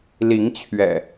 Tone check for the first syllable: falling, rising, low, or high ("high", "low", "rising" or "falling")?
rising